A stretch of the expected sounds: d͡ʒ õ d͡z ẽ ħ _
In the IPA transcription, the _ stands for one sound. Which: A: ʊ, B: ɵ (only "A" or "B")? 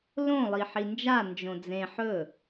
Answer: B